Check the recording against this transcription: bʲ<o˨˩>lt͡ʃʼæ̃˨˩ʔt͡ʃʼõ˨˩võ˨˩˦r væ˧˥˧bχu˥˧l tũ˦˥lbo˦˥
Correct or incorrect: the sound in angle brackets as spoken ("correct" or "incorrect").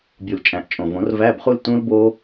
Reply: incorrect